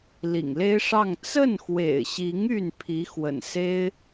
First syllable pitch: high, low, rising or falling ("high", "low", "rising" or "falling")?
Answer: low